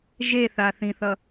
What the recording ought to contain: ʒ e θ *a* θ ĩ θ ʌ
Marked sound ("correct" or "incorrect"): correct